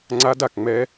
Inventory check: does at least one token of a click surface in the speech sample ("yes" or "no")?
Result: yes